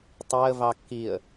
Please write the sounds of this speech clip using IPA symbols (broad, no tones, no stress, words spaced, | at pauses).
tˤɛə̯vɑ kːiə̯